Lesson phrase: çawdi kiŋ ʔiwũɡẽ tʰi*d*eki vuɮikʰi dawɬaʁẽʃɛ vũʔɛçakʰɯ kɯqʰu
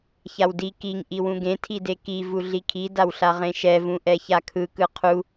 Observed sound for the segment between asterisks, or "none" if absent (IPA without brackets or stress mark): d